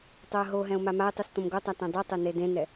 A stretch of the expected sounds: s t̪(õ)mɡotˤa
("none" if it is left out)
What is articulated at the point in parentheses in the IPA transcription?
õ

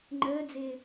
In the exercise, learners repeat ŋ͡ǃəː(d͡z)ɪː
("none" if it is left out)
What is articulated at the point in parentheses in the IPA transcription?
d͡z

